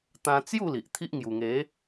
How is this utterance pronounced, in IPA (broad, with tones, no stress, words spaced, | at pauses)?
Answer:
t̪ã˧ t͡sju˥˧ li˨ʔt̪ʰi˦ʔ ŋju˨˩ŋe˨˦